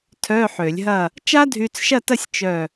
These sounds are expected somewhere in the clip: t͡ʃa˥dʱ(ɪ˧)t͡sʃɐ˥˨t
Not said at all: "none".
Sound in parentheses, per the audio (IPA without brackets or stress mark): y˧